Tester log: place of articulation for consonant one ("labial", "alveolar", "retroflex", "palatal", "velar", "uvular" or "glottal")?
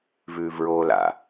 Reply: labial